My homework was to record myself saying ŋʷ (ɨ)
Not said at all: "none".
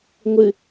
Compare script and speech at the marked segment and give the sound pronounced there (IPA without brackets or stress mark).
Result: ɨ